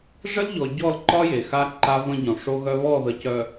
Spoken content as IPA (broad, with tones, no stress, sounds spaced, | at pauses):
ʐ ə˦ l ʎ ɔ˨ ɟ ɔ˦˨ l ǃ ɒ˦ j e˨ x a˦ ǃ a˦ v ə̃˦ ɟ ɔ̃˨ ʂ o˦ ɣ œ˦ β ɔ˦˨ ð ə˨ c œ˨